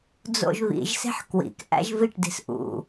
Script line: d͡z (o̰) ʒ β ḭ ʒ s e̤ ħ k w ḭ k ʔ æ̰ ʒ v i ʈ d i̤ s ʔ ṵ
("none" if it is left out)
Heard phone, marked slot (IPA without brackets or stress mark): o̰